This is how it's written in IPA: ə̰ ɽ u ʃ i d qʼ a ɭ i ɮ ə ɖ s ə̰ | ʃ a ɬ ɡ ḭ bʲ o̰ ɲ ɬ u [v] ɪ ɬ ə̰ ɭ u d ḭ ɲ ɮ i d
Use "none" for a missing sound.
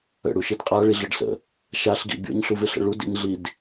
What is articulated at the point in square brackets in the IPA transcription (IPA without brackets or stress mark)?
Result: v